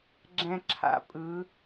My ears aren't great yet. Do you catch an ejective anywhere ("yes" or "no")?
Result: yes